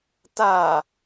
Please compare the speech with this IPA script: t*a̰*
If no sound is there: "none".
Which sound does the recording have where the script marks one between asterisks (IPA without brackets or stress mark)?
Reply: a